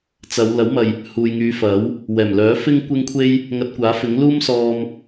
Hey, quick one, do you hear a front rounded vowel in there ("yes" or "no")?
yes